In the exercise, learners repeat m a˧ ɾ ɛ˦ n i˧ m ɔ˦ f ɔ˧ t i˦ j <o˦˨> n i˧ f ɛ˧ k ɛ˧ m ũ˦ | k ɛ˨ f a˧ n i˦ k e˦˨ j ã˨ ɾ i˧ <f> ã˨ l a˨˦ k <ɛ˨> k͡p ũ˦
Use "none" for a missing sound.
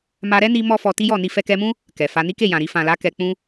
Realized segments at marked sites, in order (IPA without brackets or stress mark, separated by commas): ɔ˦˨, f, ɛ˧